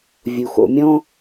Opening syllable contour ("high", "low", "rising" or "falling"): low